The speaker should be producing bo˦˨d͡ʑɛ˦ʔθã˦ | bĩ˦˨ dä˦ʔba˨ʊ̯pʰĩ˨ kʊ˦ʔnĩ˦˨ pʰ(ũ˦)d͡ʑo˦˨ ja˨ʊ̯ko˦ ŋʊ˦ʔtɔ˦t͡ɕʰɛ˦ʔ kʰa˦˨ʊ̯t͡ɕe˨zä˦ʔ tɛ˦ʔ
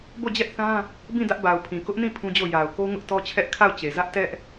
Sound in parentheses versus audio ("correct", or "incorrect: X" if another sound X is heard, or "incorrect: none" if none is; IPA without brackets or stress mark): correct